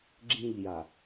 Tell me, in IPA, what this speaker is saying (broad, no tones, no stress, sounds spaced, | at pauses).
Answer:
ɡ͡ǁ ĩ ʎ j a